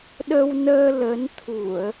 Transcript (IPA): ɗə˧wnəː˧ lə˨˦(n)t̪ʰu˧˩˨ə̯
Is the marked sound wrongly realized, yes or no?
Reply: no